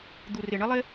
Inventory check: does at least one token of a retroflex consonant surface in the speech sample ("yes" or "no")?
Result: yes